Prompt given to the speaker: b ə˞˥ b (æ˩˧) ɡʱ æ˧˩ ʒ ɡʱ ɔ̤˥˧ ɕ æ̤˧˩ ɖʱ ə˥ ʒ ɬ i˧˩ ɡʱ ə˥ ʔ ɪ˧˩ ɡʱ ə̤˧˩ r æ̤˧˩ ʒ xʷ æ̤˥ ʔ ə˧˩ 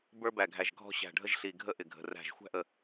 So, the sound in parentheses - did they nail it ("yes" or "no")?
no